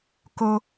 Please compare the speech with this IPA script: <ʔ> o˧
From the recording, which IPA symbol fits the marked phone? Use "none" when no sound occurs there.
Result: k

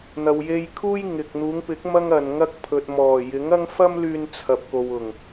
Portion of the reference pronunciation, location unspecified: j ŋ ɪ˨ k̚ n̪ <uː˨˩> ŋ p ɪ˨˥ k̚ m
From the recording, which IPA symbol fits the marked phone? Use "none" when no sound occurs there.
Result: uː˨˧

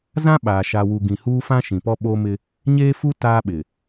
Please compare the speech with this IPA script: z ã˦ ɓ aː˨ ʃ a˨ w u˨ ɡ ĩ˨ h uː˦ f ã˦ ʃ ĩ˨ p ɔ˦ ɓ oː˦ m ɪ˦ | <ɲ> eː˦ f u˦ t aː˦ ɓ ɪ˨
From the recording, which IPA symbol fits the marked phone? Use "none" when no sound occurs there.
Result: ɲ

